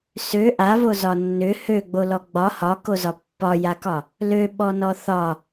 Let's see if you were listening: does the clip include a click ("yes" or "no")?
no